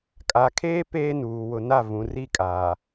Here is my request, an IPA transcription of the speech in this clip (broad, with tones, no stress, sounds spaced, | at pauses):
kʼ a˨ kʰ eː˦ p eː˦ n uː˨ w ʊ˨ n a˦˨ v ũ˨ r i˦˨ kʼ aː˨